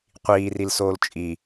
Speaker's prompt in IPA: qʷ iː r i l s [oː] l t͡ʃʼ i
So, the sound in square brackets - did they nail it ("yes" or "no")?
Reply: yes